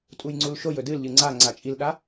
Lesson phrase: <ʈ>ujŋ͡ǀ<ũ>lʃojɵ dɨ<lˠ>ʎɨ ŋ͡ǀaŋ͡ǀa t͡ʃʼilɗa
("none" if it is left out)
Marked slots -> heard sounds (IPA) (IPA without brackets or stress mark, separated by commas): tʼ, u, l